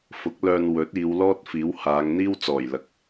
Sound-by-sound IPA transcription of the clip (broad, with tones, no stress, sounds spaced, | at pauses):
f ʊ˨˥ k̚ l œː˧ n w ɵ˨˥ t̚ iː˨˧ w l ɔː˥ t̚ f iː˨˥ w h aː˨˧ ŋ n̪ iː˥ w t͡s ɔː˨˩ j l ɐ˨˥ k̚